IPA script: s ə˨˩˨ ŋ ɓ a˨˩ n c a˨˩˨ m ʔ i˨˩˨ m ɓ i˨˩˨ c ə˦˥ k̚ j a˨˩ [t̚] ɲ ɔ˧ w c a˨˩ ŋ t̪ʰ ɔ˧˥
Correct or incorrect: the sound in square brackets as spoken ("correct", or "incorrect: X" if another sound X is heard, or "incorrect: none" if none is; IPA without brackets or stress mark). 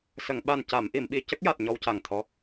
correct